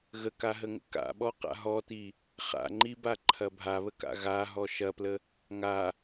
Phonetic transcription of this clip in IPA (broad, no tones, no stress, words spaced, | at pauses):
ɣəkaɦəŋə̰ ka̰ɓɔqa̰ ɦɔti | χa̰ŋ͡ǃibaǃʰɐ bʱaβəka̰ ɣaɦɔ ʃɐplə | ŋa